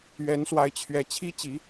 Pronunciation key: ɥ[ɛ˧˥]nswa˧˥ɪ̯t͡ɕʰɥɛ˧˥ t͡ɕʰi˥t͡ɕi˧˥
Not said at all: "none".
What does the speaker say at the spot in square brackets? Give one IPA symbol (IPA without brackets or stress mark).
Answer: ɛ˧˥